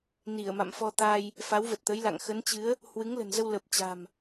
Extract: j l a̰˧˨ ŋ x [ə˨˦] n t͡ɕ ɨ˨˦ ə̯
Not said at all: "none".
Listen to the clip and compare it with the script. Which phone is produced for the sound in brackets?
ə˨˦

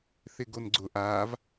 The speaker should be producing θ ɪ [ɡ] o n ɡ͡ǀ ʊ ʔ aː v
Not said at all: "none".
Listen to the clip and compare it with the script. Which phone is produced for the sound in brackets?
ɡ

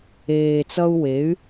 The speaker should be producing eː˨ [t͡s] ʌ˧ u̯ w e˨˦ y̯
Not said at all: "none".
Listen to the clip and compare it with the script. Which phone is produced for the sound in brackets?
t͡s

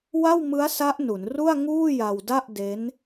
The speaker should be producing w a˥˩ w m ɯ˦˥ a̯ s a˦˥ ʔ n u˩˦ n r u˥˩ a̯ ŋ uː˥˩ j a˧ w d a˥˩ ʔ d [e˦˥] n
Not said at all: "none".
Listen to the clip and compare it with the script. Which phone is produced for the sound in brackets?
e˦˥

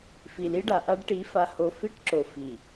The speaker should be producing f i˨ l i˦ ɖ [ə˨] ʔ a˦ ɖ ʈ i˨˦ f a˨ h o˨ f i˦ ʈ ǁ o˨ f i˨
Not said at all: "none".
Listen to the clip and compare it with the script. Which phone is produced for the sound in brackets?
a˨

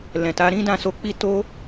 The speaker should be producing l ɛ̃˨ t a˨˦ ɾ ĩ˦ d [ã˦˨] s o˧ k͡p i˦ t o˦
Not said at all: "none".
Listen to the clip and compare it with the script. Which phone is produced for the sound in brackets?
ã˦˨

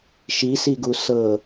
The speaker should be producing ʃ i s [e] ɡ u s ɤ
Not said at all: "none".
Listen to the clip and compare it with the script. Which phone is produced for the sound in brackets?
i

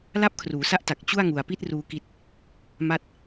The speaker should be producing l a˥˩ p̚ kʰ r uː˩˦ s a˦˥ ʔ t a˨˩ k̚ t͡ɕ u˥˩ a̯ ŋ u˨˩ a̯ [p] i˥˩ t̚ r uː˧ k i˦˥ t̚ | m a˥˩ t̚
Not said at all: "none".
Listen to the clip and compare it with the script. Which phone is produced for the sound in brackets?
p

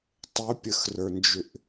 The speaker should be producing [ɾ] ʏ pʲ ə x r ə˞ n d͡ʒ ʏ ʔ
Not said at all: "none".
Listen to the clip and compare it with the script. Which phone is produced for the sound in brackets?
tˤ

